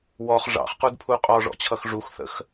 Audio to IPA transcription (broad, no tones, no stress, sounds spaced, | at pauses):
w ɔ χ ʐ ɑ̰ χ q u d pʰ u qʼ ɔ ʐ ɔ̰ t͡ɕʰ ʌ x ʐ u x θ ə̰ x